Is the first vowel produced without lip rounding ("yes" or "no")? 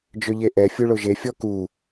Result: no